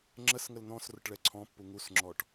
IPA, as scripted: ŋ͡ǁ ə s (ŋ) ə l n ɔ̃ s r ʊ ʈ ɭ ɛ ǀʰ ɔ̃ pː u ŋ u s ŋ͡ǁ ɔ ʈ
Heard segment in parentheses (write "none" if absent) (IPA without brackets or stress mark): ŋ